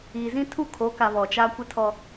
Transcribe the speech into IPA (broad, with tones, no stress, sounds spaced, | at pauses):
iː˨ z ĩ˦ tʰ u˦˨ kʰ o˨˦ k a˨ β ɔ˨ t͡ʃ a˦ kʷ ɪ˦ tʰ ɔ˦